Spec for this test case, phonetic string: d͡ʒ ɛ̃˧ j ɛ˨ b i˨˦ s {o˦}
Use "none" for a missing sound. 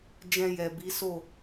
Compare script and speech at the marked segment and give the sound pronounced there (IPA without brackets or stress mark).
o˦˨